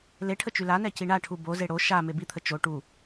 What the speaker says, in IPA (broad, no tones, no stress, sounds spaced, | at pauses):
l e ʈʰ ə t͡ʃ y l a n ɛ c i ɳ a ʈʰ u b o z e ɽ o ʃ a m e b i t̪ʰ ə t͡ʃ o ʈ u